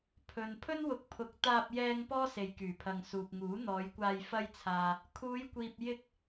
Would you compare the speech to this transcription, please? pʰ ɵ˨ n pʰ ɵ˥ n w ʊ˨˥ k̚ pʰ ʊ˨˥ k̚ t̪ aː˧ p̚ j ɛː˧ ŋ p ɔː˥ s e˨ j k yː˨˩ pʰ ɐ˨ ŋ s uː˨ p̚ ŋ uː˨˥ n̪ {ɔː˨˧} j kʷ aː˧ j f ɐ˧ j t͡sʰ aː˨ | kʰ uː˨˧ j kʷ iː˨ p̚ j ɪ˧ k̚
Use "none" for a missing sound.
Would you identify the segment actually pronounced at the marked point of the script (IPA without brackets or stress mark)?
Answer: ɔː˨˧